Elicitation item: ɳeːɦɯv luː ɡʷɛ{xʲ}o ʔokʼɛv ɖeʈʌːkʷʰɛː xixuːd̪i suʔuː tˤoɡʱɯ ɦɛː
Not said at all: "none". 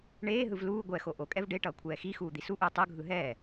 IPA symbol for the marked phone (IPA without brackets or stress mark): x